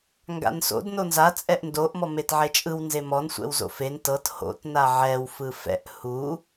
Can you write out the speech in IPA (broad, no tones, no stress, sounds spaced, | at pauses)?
ŋ ɡ a̰ n s o̰ d n o n z a t͡sʼ ɛ ʔ n d o ʔ m ɔ m e t ʕ e t͡ʃʼ ɯ w n z e m ɔ n sʷ ɛ̰ w z o̰ f e n t ɤ t h o̰ t n a ʕ ɛ w f ɯ f ɛ̰ ʔ h u